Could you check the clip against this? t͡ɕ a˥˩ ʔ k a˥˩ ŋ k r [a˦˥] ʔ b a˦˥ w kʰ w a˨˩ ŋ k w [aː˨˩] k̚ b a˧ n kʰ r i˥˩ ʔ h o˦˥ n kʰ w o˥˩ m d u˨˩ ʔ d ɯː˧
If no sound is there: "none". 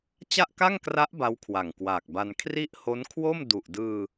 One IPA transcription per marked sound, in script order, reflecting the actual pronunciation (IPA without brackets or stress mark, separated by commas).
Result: a˦˥, aː˨˩